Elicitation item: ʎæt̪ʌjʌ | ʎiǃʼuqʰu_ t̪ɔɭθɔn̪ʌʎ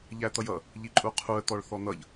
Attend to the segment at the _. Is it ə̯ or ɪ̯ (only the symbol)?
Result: ə̯